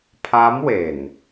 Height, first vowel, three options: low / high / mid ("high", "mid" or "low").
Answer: low